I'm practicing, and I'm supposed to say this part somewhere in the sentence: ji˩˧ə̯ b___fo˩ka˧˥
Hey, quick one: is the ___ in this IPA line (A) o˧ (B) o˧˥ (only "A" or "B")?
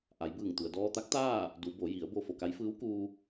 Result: A